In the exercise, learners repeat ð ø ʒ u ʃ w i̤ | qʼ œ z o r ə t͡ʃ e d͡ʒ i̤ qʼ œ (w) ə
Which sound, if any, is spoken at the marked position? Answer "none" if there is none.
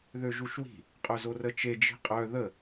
ð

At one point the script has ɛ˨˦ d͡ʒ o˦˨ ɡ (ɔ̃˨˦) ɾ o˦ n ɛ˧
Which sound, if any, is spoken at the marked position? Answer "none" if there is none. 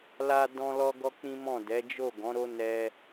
ɔ̃˨˦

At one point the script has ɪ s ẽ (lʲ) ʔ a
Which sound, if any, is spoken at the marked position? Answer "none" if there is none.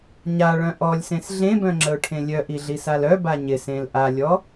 l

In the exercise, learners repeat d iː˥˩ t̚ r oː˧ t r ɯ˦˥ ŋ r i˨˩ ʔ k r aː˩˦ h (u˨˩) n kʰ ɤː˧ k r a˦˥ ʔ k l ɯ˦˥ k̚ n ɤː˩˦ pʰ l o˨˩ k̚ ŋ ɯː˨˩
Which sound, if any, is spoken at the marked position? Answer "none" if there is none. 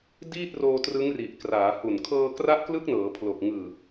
u˨˩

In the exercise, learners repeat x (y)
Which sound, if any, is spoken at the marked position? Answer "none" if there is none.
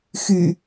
y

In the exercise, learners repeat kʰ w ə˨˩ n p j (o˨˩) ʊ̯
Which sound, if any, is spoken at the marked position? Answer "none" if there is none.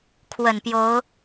o˨˦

